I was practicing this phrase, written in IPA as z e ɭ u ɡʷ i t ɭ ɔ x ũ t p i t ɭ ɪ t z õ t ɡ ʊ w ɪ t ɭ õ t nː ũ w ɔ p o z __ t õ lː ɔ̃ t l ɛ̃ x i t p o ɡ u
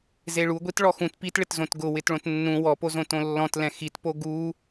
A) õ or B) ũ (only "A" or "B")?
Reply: A